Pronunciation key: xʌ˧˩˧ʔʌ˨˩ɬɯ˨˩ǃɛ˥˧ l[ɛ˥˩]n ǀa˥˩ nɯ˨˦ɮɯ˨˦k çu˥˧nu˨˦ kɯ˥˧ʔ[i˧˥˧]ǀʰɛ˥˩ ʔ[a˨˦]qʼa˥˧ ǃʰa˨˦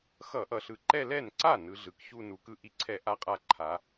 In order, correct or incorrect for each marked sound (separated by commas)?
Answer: correct, incorrect, incorrect